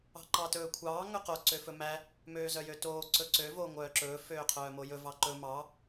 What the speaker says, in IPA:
ɑ̤ǃɑtɵːkʷʰɑː ŋɵqo ǀøfɵmæ | møːzœjøtoː ǀɵǀø voːŋʷœːǁɵː føːqʰœːmojɵ vɑǃɵ mɑ

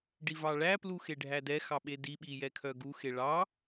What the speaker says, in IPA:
ɖivɑɭæplu xeɖʱædɛxɑ ɓediɓi jɛkʰœɡuxe ɭɑ

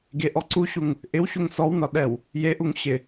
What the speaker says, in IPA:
ɡeʔɔ ǀuɕuŋ | ʔɪwɕuŋ sɔwnɒ ɗɛw | jeʔuŋ ɕɪ

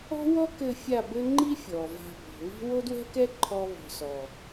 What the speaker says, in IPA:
ɔ̤˦wɔ˦kɘ˧ fʲa˦˨bɘ˦ ŋ͡ǃi˦ fʲɔ˨va̤˧ bɔ̤˨βi̤˦ wo˦dwɛ̤˦kɛ˦ ǃʰɔ˦βɔ̤˧ sɔ˨

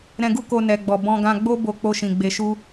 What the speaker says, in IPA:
ɾɛ̃˧ɡu˦ko˧ nɛ˨ɡ͡bɔ˨ bɔ̃˧ɡã˧ɡ͡bo˦ bo˧k͡po˧ʃĩ˨ ɡ͡be˧ʃu˦

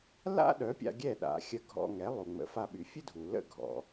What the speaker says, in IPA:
la̰˥ ɗœ˩˥pʲa̰˧ ɡʲɛ˥˩ɗa̰˩˥ xʲə˧ɡʱɔ̰˧ŋɛ˩˥ lˠu˩ŋ͡mə̰˩˥fa˧ɓy˩ fʲə˥dʱu˩ lə̰˥˩ɡʱɔ̰˩

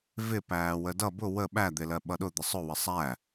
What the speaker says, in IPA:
vɪ pæːwədʌ bʊ wə ɓæd̪ɪlɜ ɓʌɗʊ d̪əsˤʊ wəsˤæ

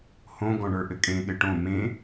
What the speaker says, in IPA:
hõ ɡɔ̃ɳə˞ʔɘkʼẽ ɠɘʈõ mẽ

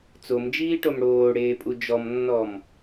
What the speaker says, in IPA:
t͡somd͡ʒiːʈom ɽoːɽeːpʼu d͡ʒɔmnːɔm

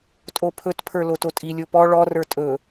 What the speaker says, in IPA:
tʼopʰɵtpʰə˞ lototʼilʲo pɔ ɭɔrə˞ tʼɵ

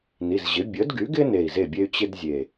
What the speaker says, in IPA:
ni˩˧˩zʑɪ˩˥ bʲə˩˥dɡy˩˥ɡɪ˥ ne˧˩i̯ze˥˩bʲe˥y̯ t͡ɕɪ˥d zʲe˧˩

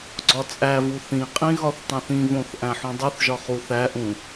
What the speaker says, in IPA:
ɡ͡ǀɒt͡sʼævu θĩqʼĩ ɣɒθtˤõθĩvõθ ʔæ̃ħũdˤuθʒɒ χuθæʔũ

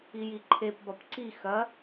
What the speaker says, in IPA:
ijiǃʰep bɒpǀi xɐ

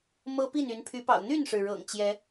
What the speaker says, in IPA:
mɤ˦pi˥˨n y˨˦npʰy˨˦pɑ̰˨˩ʊ̯ n̪y˥˨nʂɻ̩˩ ɻɤ̰˨˩ŋ t͡ɕjɛ˨˦

